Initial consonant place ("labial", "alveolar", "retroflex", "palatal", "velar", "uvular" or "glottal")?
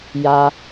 palatal